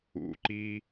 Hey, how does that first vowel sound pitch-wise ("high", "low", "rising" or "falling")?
low